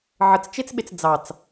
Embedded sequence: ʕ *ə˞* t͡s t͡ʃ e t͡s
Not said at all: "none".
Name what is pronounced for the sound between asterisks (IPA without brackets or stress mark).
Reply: ə